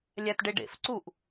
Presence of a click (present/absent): present